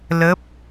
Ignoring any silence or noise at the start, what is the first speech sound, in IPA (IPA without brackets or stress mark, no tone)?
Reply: l